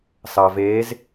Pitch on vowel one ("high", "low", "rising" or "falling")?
low